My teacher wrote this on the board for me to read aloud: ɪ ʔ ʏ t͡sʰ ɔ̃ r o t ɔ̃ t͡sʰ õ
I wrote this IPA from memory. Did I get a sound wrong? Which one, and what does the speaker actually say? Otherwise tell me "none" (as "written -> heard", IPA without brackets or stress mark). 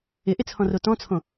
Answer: ʏ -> ɪ